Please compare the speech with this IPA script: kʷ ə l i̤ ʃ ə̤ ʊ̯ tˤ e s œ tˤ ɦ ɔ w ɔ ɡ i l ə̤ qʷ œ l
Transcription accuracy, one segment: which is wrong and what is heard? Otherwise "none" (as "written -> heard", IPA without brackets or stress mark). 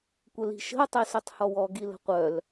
ɦ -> h